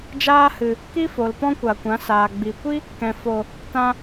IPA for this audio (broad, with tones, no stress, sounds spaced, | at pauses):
d͡ʒ aː˦ h ɨ˨ | k i˦ f o˨ l p ɔ̃˦ kʷ a˨ kʷ ã˨˦ s aː˨ ɡ͡b i˨ kʷ i˦ | k ɛ̃˨ f o˨ | t ã˧